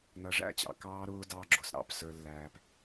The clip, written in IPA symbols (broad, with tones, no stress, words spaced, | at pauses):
nʌ˨ʐæ̰˦˨ t͡ɕɑ̰˨kɑː˦ɾʊː˦ dɑ˦ɡ͡ǁʊ˨s ɾɑ̰˦˨psə˞˦lːæː˦p